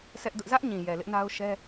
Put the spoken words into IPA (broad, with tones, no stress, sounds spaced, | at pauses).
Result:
s ɛ˦ ʔ d ʊ˦ ʔ z ä˦ ʔ ɲ ĩ˨ j ɛ˨ l ɪ˦ ʔ n a˦ ʊ̯ ʃ ɛ˦